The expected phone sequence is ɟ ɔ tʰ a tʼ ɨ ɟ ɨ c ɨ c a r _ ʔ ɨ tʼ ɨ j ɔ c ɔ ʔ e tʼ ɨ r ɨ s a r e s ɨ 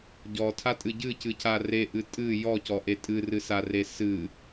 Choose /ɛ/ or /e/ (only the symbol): e